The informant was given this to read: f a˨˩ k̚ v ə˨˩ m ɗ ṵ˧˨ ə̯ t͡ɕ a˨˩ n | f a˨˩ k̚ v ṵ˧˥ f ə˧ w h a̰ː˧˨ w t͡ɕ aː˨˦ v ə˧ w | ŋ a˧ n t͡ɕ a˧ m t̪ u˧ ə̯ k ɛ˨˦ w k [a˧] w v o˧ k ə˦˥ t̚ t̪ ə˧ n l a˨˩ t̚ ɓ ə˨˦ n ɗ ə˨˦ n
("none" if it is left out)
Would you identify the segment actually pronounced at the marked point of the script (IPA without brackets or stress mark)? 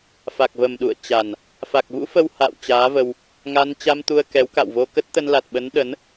a̰˧˨